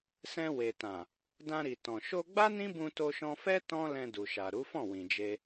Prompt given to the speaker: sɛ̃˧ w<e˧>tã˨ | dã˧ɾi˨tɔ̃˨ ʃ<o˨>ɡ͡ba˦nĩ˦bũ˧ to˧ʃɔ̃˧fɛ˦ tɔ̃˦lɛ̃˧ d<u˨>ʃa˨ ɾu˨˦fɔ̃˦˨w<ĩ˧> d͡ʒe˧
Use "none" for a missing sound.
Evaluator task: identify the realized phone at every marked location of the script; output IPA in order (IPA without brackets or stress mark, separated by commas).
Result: e˨, o˧, u˨, ĩ˨